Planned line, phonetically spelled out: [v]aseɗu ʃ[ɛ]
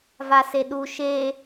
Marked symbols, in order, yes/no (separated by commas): yes, no